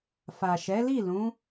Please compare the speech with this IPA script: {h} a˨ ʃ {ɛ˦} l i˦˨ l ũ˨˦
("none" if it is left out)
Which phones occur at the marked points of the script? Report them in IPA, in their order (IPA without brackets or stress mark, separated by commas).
f, ɛ˨˦